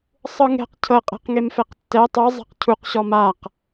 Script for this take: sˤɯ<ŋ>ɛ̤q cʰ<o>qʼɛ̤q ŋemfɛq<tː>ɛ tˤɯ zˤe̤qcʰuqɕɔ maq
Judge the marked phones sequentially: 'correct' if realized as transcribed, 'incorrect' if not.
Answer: correct, incorrect: ɤ, correct

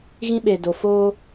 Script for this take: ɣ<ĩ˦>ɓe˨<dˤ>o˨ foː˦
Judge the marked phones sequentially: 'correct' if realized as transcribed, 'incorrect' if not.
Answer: correct, incorrect: d

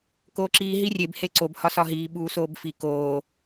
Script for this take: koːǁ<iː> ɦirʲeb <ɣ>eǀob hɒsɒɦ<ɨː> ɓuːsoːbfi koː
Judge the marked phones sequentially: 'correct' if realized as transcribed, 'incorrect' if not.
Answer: correct, incorrect: h, incorrect: iː

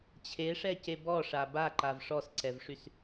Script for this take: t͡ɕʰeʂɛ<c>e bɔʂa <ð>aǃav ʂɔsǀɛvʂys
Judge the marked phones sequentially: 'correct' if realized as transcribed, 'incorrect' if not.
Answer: correct, incorrect: b

